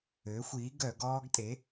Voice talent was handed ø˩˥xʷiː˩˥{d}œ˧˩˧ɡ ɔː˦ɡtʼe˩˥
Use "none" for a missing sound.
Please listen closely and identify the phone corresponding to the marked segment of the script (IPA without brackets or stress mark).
ɡ